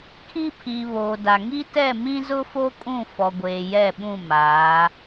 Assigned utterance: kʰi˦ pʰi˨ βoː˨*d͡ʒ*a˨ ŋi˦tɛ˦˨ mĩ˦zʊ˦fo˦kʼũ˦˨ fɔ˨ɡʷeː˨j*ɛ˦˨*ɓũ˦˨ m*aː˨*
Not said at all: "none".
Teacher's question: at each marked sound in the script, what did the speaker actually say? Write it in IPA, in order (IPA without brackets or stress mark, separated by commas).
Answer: d, ɛ˦˨, aː˨˦